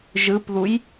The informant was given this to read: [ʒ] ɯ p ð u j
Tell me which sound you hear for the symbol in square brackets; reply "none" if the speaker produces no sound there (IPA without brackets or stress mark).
ʒ